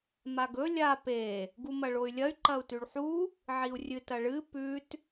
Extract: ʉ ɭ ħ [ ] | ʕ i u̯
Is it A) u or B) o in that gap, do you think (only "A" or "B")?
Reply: A